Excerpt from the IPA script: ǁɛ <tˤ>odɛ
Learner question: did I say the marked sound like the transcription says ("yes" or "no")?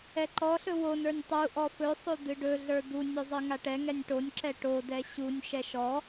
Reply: no